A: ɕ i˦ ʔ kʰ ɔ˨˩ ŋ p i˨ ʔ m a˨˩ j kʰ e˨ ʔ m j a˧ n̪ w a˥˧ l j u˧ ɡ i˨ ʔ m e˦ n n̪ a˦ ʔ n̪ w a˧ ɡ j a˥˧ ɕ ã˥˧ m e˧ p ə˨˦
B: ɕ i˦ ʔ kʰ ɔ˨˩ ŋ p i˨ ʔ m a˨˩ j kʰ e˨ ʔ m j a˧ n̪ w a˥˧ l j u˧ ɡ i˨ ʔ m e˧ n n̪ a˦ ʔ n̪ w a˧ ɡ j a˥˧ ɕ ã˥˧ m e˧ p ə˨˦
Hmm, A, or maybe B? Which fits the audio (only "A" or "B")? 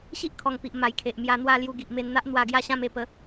B